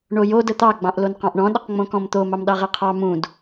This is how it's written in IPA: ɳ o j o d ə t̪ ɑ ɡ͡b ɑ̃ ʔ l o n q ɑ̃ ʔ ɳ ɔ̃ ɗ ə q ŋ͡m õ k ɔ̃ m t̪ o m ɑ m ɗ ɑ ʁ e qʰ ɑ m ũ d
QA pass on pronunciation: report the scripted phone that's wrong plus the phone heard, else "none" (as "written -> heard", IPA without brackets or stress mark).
none